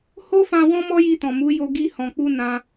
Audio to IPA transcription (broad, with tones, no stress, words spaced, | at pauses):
ho˦fã˧ wɔ̃˦mɔ˦ji˧tɔ̃˨ mu˨˦jo˧ ɡi˧hɔ̃˨k͡pu˧ nã˧